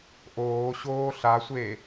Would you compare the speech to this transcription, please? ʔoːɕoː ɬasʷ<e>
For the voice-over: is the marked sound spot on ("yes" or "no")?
yes